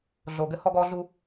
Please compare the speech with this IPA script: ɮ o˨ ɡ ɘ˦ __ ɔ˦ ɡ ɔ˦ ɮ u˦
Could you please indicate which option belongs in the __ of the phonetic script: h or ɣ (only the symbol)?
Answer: h